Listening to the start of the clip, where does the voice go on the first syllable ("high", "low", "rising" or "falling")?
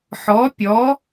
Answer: rising